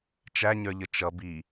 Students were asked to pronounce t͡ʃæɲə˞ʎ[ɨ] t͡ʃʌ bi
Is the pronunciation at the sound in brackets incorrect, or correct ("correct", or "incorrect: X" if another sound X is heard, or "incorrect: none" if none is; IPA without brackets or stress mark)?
incorrect: ə